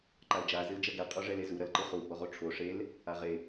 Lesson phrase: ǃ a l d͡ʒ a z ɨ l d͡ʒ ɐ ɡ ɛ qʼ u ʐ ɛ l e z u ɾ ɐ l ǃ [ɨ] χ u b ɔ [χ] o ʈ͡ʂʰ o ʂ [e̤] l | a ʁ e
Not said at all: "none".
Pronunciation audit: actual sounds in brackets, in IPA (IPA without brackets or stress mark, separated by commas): ɨ, ʁ, e